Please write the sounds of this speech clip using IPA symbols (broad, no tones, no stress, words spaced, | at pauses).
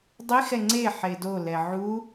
dˤixɛ ŋ͡ǀe ħedolɛ ʕu